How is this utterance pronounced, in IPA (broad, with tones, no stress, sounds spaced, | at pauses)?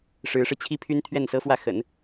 ʂ ɻ̩˧˥ ʂ ɻ̩˧ t͡ɕʰ i˥ pʰ y˥ n t̪ʰ ɥ ɛ˥˩ n s ɤ˥ f w ä˥˩ x ə̰˨˩˦ n